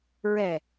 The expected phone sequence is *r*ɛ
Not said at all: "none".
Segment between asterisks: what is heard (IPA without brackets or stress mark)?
ɹ